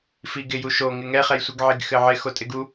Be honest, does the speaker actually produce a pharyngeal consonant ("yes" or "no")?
yes